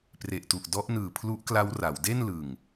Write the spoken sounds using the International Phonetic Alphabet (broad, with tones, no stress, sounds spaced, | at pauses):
p r e˨˩ ʔ t u˨˩ ʔ d ɔ˦˥ ʔ n ɯː˨˩ pʰ l u˦˥ ʔ k l a˦˥ w r a˩˦ w d e˥˩ n l ɯ˨˩ ŋ